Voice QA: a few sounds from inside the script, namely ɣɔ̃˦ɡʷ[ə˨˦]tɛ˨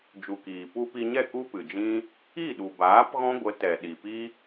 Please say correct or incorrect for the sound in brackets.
correct